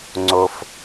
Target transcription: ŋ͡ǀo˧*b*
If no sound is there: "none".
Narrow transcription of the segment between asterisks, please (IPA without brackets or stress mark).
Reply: f